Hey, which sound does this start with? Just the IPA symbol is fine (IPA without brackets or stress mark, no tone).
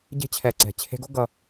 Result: ɟ